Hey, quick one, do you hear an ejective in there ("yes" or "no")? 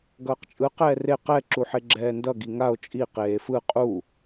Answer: yes